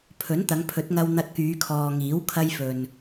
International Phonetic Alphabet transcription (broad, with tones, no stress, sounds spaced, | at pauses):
pʰ ɵ˨˥ n t̪ ɐ˨˧ ŋ pʰ ɵ˨˥ t̚ ŋ ɐ˧ w n̪ ɐ˧ t̚ k yː˨˧ kʰ ɔː˨ ŋ iː˨˥ w kʰ ɐ˧ j f ɵ˨ n